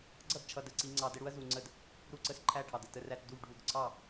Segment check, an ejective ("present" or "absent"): absent